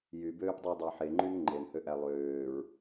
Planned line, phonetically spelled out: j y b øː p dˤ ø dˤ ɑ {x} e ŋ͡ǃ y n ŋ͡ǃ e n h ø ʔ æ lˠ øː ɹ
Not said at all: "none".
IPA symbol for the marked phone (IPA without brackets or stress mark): ħ